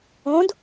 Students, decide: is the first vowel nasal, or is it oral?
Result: nasal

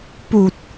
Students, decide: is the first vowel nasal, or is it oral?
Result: oral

